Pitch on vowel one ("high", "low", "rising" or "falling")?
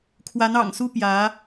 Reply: rising